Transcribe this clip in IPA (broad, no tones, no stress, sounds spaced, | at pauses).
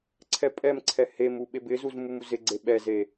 ǀʰ ɛ pʼ ɛ m ǀʰ ɛ h e m u ɓ e b ɪ z u z m u m u z ɪ ɡ͡ǀ e ɓ ɛ z e